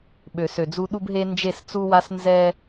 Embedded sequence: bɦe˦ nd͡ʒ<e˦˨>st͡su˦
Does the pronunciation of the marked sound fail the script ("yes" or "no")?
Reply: no